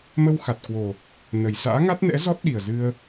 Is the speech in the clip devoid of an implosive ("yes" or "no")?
no